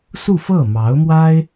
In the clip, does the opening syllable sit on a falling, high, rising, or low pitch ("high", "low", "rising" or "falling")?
falling